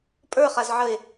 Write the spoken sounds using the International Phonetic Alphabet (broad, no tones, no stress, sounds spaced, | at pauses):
pʼ ə˞ χ a z ʕ ə e̯